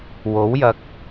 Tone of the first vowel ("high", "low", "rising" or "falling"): rising